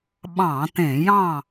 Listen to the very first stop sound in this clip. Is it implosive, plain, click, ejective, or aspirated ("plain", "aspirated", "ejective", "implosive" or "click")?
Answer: implosive